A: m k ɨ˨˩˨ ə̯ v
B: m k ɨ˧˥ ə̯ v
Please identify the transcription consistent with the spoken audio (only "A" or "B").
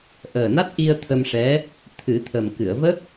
A